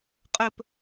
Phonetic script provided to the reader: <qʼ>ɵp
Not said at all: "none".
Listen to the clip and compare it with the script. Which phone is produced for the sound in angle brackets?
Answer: qʼ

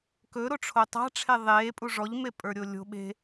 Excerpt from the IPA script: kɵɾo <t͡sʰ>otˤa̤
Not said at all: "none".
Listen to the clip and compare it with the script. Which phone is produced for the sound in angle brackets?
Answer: ʈ͡ʂʰ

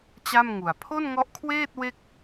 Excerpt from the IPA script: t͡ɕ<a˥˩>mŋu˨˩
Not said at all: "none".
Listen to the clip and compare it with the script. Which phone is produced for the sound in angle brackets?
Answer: a˥˩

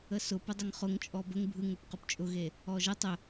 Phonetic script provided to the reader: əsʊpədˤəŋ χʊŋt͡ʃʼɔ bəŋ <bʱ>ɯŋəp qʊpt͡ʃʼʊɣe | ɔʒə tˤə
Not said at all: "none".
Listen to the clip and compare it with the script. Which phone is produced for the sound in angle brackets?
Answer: bʱ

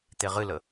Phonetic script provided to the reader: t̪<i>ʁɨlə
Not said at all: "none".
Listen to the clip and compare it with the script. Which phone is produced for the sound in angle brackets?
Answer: e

